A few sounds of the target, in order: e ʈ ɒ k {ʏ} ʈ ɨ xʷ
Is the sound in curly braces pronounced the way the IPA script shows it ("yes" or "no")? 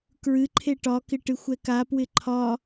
no